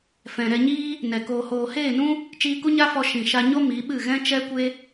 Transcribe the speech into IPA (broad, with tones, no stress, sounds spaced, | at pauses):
f ɛ̃˨ ɾ ɛ˧ ɲ iː˦ | n ɛ˨ k oː˨ h oː˨ h eː˦˨ n ũ˦ | t͡ʃ iː˧ k u˦ ɲ a˦ f ɔ˧ ʃ ĩ˨ ʃ a˧ ɲ o˦ m i˨˦ ɓ ɨ˦˨ ɣ ɛ̃˦ t͡ʃ ɛ˦ kʷ e˦